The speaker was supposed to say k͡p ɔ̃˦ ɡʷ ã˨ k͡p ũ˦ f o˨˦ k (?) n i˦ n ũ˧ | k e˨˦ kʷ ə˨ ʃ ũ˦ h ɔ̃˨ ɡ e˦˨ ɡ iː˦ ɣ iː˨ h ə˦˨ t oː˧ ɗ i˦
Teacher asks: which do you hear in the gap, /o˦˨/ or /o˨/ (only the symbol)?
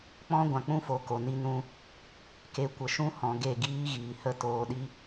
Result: o˨